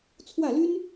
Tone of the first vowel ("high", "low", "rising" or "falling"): falling